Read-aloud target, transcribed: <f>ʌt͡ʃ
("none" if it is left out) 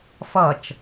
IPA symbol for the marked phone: f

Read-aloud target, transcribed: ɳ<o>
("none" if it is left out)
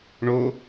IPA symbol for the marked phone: o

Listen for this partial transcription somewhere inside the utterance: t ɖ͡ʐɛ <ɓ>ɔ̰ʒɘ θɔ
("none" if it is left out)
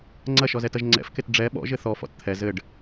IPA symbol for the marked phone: ɓ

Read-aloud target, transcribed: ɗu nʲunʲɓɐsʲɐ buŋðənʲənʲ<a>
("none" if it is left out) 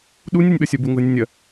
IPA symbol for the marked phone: ɐ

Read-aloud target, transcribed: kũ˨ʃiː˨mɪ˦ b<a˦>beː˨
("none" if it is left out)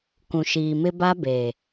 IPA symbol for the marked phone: a˦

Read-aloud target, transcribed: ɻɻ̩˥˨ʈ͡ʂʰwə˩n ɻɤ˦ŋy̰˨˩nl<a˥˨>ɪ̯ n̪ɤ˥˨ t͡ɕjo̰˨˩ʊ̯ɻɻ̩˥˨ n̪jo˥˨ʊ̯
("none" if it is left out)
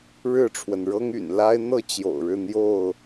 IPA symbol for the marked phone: a˦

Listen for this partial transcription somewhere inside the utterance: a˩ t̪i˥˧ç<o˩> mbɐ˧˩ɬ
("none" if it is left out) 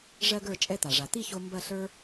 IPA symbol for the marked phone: o˧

